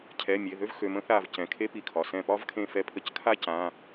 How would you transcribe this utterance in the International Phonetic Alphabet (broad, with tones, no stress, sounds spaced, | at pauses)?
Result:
cʰ ɛ˩˧˩ mʲ e˩˧˩ ð ø˥ v x ø˩˧˩ m ə̃˥ θ a˧˩ v c ɛ̃˩˧˩ kʰ e˥ p i˧˩ kʰ ɒ˩˧˩ s ɛ̃˧˩ p ɒ˥ v kʰ ẽ˧˩ f ɛ˧˩ pʰ ə˧˩ c kʰ a˥ c ã˩˧˩